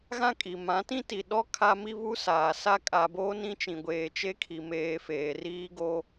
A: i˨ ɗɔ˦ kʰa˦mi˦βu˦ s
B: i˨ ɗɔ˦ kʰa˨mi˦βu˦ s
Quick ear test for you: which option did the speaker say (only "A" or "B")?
A